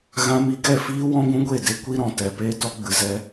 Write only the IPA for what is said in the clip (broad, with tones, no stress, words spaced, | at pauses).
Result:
ɣã˧mi˧ ɡɛ˦˨fiː˦ wɔ̃˦ɡʷũ˦ɡʷe˦˨de˦ kʷi˧ɾɔ̃˨ tɛ˨ peː˧tɔ˧ɡ͡bɨ˨ zɛ˦